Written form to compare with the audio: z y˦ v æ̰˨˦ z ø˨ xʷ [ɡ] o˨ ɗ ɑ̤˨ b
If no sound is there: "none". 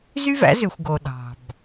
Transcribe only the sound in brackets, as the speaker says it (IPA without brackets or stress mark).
ɡ